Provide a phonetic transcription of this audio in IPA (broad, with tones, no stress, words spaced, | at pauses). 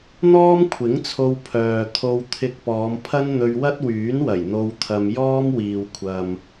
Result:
n̪ɔː˥mkʷʰɪ˨˥ŋt͡sʰo˧w pʰœː˨t̪ʰo˧w t̪ʰɪ˧k̚ pɔː˨˧mpʰɐ˥n n̪ɵ˧ɥwɐ˥t̚wyː˨˥nwɐ˨˩j n̪o˧wt̪ʰɐ˧m jɔː˥mwiː˨wkʷʰɐ˨m